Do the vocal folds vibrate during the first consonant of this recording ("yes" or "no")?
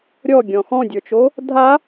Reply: yes